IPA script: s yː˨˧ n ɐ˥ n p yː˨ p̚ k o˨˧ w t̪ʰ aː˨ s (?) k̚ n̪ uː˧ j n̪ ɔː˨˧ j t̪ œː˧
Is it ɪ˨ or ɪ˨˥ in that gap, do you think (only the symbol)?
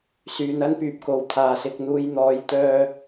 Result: ɪ˨